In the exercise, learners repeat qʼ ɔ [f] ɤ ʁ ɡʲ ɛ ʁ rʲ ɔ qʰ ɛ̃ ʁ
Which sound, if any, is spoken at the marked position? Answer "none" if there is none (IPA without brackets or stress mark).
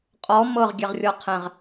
m